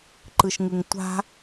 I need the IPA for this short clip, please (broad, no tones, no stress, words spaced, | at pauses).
ǃɯʃŋɯŋtʷa̤